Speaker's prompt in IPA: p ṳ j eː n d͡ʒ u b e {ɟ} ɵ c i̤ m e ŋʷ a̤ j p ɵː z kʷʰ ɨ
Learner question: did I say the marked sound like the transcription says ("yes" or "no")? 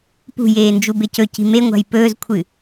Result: no